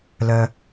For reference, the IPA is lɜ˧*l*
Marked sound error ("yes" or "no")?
yes